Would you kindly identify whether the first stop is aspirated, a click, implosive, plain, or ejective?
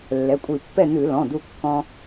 ejective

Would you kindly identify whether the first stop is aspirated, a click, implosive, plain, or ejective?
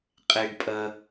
ejective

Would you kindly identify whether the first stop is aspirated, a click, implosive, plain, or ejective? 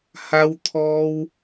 aspirated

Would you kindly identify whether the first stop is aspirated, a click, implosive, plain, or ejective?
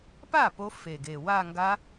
plain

